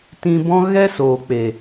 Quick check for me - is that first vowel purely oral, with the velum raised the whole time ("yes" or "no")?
no